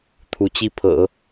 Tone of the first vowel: rising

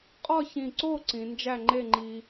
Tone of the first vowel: falling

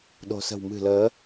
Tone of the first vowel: low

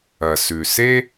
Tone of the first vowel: low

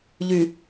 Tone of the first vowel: low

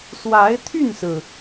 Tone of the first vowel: rising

